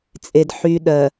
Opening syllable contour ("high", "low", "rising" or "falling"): low